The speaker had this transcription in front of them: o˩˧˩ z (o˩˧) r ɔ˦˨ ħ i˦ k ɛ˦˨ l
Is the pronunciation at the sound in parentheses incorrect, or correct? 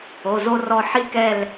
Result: incorrect: o˦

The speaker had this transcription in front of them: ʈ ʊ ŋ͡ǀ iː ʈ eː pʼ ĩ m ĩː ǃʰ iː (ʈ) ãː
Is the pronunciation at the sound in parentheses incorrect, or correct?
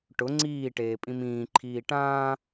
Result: correct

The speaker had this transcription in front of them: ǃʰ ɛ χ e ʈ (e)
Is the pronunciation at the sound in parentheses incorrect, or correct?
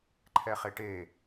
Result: correct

